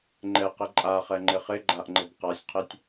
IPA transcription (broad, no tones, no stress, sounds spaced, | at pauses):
ŋ͡ǃ ɛ q ɛ ǃʼ a χ ɛ ŋ͡ǃ ɪ χ ɪ ɡ͡ǃ a ʔ ŋ͡ǃ ɪ b q a sʲ qʰ ɛ tʲ